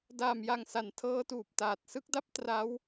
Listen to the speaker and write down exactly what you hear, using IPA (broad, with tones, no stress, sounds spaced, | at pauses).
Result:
d aː˨˩ m j a˨˩ ŋ s a˩˦ n tʰ ɤː˦˥ t uː˨˩ p̚ t aː˨˩ t̚ s ɯ˥˩ k̚ d a˥˩ p̚ t r a˦˥ w